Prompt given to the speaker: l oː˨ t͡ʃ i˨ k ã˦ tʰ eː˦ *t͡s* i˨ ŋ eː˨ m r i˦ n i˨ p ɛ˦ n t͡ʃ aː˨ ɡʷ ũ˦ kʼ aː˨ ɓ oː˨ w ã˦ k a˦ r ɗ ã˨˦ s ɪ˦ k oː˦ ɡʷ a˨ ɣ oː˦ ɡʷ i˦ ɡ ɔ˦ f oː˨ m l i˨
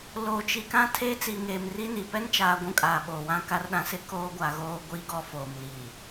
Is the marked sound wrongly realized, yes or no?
no